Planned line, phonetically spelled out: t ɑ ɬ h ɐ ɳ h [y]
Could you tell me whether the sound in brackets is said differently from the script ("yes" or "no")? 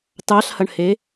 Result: yes